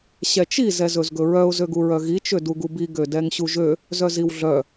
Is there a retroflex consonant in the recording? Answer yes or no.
no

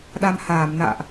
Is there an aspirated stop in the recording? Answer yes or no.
no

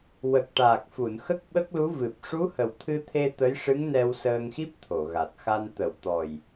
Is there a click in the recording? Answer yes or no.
no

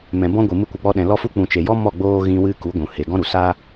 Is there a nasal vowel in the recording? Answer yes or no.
yes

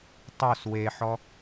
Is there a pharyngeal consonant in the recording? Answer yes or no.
yes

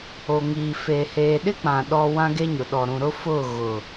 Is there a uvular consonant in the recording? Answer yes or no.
no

